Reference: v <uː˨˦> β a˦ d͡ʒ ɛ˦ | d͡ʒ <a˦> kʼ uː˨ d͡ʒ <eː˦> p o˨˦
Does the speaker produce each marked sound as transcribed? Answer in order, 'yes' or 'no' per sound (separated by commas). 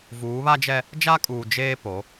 yes, yes, yes